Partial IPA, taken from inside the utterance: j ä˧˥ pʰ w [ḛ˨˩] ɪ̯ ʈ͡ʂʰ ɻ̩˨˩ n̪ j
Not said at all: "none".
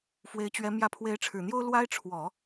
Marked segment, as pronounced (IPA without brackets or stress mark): e˧˥